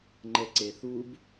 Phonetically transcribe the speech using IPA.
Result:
ŋ͡ǃɛǀeθub

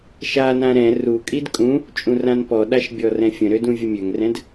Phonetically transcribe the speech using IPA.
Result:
ʃanã ɾɛ̃ rukʼid kʼũ | t͡ʃʼũrãnpɔɗaʃ bʲɔrɛ̃fʲə̃ɾød ũvʲəmʲøŋrɛ̃d

